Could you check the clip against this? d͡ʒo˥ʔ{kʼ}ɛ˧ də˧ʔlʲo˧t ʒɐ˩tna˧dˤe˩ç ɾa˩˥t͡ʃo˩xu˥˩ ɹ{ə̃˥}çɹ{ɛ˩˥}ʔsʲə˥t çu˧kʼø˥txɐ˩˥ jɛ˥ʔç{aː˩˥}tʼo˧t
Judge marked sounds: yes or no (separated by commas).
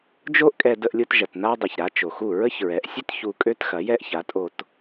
yes, no, yes, no